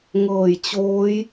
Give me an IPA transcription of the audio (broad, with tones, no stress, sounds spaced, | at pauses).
ŋ ɤː˨˩ j t͡ɕ oː˦˥ j